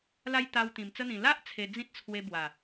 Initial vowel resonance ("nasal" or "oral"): oral